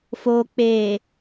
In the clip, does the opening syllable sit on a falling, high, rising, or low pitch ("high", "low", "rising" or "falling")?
low